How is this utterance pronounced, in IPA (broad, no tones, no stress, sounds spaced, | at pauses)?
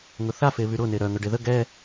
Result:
ŋ ʊ θ a f e β y ɾ ʊ n e ɾ œ ŋ œ ɖ e ð ə ɡ ɛ